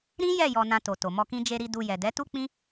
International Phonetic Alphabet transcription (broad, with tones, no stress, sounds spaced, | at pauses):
ɾ ĩ˦ j ɛ˦˨ j ɔ˧ n ã˧ t o˨ t o˨ m ɔ˧ k ĩ˦ d͡ʒ e˧ ɾ i˧ d u˧ j ɛ˨ d ɛ˨˦ t u˦ k͡p ĩ˦